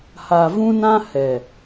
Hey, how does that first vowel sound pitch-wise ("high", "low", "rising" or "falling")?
low